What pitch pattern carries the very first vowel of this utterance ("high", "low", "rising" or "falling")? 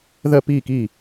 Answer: falling